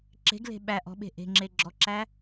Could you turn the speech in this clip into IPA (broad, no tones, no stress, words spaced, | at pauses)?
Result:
ǁe̤ɡle̤ ɓæ ʔɔ̤ɓe̤ ʔe̤ŋ͡ǁe ɡ͡ǁɔǁæ